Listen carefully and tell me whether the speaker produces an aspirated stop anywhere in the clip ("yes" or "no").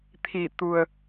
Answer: yes